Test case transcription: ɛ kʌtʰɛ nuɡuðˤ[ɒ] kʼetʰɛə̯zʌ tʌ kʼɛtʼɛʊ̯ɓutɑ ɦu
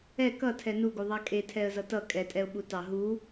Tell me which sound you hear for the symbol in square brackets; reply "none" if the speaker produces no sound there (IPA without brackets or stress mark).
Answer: ɑ